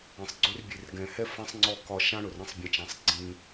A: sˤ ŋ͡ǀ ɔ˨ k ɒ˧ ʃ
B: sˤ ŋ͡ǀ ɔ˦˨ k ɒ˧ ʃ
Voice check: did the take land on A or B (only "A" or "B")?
B